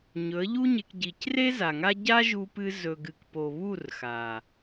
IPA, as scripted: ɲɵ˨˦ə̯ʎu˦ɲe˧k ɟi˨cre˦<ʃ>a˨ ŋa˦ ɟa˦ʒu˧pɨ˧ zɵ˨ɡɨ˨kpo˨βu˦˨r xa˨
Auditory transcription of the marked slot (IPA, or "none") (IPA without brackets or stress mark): z